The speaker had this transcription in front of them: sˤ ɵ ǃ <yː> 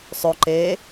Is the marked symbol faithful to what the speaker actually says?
no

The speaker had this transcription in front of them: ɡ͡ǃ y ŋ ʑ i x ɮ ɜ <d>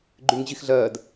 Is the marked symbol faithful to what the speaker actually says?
yes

